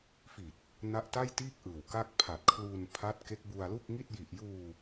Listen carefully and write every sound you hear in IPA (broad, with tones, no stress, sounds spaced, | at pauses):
f i˨˩ t̚ | n a˦˥ ʔ t a˥˩ j t iː˥˩ k̚ ʔ ɯː˨˩ w k a˥˩ k̚ pʰ a˨˩ t̚ kʰ l uː˧ n pʰ a˦˥ t̚ k e˦˥ k̚ b u˧ a̯ l u˥˩ k̚ ŋ i˥˩ t̚ j i˨˩ ʔ j uː˧